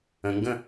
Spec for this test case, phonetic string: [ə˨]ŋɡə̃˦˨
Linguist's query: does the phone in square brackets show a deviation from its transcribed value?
yes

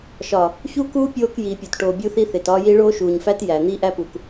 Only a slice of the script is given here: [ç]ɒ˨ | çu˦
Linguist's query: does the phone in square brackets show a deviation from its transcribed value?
yes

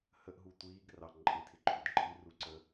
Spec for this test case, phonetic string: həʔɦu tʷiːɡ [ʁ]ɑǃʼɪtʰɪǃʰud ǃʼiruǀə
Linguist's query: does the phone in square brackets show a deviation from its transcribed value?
yes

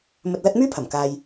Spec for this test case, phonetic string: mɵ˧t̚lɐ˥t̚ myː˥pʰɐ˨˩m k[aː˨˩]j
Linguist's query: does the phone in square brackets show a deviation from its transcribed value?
yes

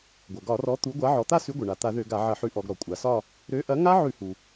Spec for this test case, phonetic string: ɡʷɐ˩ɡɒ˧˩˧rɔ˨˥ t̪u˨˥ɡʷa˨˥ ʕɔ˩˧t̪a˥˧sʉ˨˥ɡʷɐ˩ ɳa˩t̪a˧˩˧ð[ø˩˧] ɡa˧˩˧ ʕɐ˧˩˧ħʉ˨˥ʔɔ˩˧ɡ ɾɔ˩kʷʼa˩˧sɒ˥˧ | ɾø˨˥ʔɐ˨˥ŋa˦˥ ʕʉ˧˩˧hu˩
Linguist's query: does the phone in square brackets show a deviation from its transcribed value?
yes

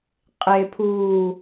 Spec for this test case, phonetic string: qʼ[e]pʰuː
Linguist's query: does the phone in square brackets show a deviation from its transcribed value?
no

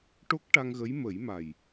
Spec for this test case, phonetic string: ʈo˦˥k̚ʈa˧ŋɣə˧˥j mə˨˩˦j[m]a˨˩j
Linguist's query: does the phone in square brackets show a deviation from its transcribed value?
no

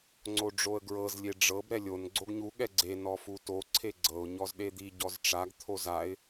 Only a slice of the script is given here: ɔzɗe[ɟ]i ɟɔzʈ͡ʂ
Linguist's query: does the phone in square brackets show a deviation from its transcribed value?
yes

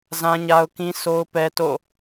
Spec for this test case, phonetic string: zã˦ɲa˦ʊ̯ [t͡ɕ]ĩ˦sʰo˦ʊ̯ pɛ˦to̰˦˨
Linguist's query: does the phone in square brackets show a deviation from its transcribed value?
yes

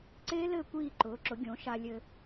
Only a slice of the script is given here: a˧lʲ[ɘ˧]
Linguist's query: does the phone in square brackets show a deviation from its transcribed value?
no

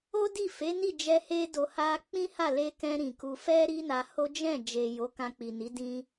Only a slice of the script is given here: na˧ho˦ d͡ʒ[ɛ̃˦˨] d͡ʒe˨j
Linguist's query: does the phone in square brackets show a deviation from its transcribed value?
no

